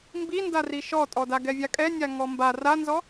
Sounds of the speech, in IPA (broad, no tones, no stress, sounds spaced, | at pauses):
m b i n d a r i ʃ ɔ tʼ ɔ d a ɡ ɛ vʲ a kʼ ɛ nʲ a ŋ ɔ m b a r a n z ɔ